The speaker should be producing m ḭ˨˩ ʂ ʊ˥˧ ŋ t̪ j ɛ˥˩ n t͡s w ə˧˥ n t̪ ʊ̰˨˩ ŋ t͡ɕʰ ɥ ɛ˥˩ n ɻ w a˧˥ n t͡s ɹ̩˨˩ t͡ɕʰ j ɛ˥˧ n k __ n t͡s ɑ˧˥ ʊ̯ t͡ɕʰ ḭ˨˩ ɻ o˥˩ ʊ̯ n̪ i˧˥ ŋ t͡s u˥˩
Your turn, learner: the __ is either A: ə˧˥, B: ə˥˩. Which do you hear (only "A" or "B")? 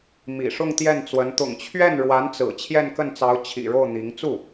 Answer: B